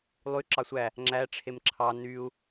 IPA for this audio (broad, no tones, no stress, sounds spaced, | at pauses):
lˠ y ǁ ɑ sʷ æ | ŋ͡ǁ æ ʈ͡ʂʰ e m ǁʰ ɑ n y u̯